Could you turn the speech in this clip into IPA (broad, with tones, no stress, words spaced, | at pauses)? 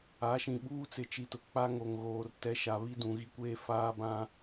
a˨˦ʃĩ˨ ɓuː˦t͡sɪ˨˦t͡ʃi˨tʊ˨ k͡pa˦ŋo˨ŋɣoː˨r tɛ˨˦ʃa˨βi˦ dũ˨ɣi˦kʷeː˦ faː˦bã˦